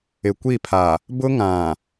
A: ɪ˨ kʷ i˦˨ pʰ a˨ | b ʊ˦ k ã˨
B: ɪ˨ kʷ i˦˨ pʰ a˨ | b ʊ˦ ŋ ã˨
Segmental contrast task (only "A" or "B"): B